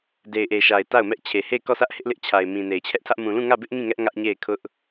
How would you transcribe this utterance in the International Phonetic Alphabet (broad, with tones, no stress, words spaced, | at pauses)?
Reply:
de˨ɪ̯ʔe˨ʃa˨ɪ̯ ta˦˨ʊ̯mɛ˦ʔ t͡ɕʰe˨he˦˨ɪ̯kɔ˦˨sä˦ʔ hɪ˦ʔlɪ˦ʔt͡ɕʰa˨ɪ̯ mĩ˨ne˨ɪ̯t͡ɕʰɛ˦ʔtʰä˦ʔ mũ˨lũ˦˨ŋä˦˨bɪ˦ʔ ŋĩ˦˨ŋɛ˦ʔ ŋä˦ʔɲe˦˨ɪ̯kʰʊ˦ʔ